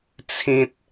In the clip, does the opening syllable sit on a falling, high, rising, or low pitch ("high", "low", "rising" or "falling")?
high